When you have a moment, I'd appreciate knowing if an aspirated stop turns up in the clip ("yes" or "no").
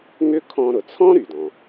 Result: yes